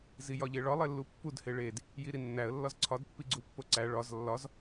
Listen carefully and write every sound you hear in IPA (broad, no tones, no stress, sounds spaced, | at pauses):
z i j ɒ ʎ e ɭ ɒ lˠ e lː u pː u d h e ɭ e d | j i ɾ i nː æ ə̯ lː ɒ z ǀʰ ɒ d pː i ɡ͡ǀ u pː o ǀ æ ɭ ɒ z lː ɒ z